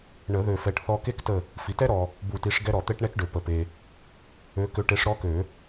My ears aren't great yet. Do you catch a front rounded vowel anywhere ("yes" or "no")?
yes